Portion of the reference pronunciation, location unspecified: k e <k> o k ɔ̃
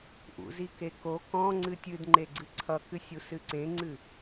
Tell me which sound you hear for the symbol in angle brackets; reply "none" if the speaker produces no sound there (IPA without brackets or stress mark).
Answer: k